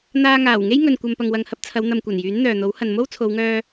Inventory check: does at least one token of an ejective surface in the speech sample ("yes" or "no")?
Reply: no